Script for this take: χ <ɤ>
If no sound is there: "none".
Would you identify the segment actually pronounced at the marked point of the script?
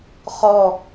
ɔ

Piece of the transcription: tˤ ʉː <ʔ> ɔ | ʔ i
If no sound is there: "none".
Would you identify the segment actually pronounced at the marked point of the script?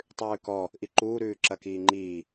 k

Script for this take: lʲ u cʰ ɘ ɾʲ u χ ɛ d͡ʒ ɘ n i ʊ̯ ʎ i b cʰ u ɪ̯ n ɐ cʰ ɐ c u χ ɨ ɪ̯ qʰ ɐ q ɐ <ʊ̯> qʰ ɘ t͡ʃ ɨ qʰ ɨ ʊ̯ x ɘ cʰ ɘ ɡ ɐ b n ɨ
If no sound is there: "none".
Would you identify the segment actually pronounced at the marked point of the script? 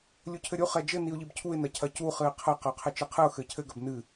ʊ̯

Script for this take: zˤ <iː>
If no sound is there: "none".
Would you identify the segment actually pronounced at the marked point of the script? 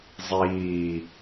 iː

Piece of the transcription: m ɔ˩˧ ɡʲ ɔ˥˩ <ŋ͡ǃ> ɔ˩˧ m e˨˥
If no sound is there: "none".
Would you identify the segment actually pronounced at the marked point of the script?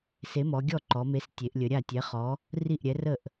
ǃ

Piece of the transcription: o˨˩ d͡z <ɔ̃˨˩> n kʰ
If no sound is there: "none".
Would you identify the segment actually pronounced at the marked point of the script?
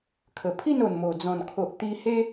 ɔ̃˨˩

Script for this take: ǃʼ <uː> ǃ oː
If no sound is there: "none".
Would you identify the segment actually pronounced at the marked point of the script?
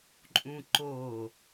ũː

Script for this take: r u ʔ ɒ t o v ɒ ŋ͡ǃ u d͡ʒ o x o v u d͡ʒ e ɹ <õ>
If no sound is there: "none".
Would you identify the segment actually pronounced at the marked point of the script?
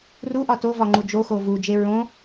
õ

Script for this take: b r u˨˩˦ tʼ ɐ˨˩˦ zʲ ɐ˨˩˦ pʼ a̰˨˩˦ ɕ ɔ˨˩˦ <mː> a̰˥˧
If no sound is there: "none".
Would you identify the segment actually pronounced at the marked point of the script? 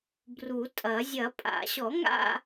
ŋ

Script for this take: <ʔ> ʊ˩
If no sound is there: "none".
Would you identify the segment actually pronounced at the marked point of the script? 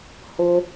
h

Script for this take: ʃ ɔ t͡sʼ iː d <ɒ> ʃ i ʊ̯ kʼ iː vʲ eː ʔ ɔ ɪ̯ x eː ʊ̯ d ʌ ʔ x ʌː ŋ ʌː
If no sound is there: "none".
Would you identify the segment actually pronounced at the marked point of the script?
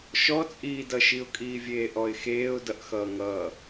ʌ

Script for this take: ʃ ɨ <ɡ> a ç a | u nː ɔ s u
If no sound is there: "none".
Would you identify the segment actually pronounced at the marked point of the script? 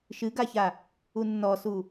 ɡ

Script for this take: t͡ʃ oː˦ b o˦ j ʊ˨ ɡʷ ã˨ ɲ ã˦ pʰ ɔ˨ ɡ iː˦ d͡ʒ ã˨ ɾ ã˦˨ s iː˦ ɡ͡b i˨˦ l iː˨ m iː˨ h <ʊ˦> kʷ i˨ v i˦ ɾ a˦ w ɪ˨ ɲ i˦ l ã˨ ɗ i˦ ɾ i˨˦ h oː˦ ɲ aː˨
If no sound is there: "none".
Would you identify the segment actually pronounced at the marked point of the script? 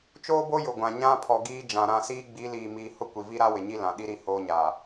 ʊ˦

